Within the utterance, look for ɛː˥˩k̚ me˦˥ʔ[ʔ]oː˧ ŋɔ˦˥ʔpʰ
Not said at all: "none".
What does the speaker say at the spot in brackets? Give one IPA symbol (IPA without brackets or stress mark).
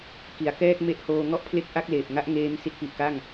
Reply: h